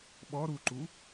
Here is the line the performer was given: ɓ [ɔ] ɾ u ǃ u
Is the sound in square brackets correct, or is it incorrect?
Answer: correct